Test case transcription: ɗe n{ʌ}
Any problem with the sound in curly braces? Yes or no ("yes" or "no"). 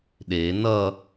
no